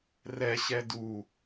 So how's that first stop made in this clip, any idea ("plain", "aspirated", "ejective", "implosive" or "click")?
plain